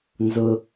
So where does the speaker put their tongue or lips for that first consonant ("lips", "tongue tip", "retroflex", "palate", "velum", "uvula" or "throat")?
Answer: tongue tip